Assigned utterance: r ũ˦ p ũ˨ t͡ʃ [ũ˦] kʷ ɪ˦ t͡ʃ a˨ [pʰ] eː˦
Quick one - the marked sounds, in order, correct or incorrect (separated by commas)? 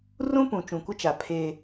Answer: incorrect, correct